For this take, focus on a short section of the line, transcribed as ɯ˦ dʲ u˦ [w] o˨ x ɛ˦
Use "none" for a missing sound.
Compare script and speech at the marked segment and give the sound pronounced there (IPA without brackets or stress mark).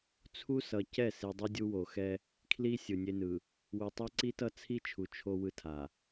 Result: w